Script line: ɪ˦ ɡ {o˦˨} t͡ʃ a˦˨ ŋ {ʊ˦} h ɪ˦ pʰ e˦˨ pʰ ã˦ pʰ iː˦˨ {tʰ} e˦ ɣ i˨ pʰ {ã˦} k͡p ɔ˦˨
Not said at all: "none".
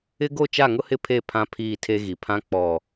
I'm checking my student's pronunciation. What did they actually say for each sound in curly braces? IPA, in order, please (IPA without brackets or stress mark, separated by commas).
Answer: o˦˨, ʊ˦, tʰ, ã˦